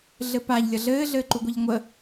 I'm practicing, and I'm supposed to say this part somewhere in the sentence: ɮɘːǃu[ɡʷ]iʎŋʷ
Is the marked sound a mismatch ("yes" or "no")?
no